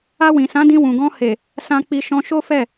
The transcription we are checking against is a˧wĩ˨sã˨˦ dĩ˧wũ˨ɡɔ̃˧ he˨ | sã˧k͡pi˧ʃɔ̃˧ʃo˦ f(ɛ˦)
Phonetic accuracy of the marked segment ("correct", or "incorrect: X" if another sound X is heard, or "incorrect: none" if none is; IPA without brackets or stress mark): incorrect: ɛ˦˨